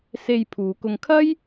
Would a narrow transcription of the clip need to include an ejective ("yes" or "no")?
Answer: no